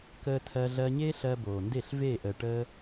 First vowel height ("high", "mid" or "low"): mid